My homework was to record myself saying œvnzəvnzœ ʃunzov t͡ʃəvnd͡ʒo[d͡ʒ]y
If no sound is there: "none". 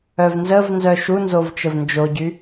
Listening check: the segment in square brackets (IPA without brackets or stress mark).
ɟ